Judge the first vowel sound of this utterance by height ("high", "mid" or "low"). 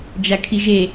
low